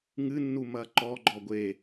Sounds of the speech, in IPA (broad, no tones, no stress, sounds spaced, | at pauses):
ŋ ɨ nː u m ɐ ǃ ɔ ɡ͡ǃ ɔ ɡʷ e